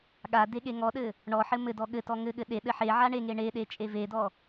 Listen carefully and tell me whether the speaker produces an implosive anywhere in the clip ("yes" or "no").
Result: yes